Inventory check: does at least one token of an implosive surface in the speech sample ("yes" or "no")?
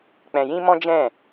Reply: no